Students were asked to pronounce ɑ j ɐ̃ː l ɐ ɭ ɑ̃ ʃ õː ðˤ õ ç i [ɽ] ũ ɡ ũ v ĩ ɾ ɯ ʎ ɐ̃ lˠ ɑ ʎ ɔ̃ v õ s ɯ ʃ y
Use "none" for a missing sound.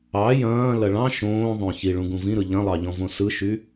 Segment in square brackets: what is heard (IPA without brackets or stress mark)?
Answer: ɭ